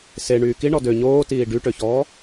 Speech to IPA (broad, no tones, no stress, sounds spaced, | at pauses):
s e ɳ yː k i ɳ ɔ d ø ɲ oː t iː ɖ y ʈ ø ç ɔː